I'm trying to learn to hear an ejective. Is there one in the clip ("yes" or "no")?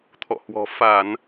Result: no